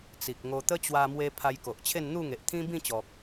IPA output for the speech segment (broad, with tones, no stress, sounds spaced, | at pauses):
t͡s i˨ k̚ ŋ o˧ t̪ ə˦ t͡ɕ w a˧ m w e˧ pʰ a˧ j k o˨ ʔ t͡ɕʰ e˥˧ n n̪ u˥˧ ŋ e˨ ʔ t̪ʰ ĩ˦ b ĩ˥˧ t͡ɕ ɔ˨ k̚